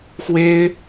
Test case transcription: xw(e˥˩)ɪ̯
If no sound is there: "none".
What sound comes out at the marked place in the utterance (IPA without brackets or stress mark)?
e˥